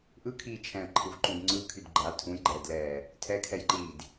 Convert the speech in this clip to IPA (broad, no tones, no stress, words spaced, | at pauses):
ʔɯkʰiː t͡ʃʰɛ̃ə̯ǃʰɯvǃũd ŋ͡ǀɯkʰyd ɡ͡ǃa tʰũjɡ͡ǃɛːdlɛː | tʰɛkʰɛjǃiːd